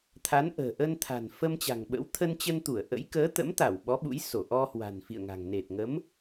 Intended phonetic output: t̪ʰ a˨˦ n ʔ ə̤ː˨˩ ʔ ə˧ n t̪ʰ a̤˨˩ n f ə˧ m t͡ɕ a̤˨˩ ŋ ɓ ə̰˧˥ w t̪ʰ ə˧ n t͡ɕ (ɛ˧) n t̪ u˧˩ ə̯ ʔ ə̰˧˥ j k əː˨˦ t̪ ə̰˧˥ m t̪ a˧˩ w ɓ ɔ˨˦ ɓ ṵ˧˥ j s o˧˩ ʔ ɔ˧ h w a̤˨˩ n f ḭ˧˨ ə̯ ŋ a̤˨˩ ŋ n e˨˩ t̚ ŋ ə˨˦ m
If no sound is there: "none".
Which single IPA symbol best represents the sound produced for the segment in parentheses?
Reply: ə˧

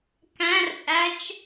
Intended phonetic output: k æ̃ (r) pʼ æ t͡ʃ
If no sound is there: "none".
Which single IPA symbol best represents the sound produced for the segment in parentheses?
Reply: r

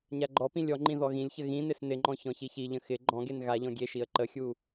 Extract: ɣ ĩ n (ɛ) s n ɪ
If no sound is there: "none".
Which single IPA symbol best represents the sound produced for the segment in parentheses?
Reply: ɪ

